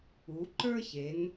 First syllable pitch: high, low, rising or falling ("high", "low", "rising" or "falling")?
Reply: rising